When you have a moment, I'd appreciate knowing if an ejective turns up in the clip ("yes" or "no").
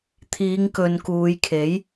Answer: no